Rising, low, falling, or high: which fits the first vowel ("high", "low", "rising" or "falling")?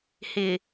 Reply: low